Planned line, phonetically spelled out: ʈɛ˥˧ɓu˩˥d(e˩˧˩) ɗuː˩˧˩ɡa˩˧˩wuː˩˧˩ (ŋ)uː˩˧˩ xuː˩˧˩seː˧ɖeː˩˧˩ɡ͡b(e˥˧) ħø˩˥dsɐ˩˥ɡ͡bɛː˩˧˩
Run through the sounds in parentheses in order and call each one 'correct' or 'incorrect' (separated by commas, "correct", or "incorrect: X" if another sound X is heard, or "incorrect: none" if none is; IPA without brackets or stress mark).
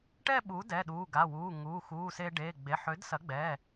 incorrect: ɛ˩˧˩, correct, incorrect: e˩˧˩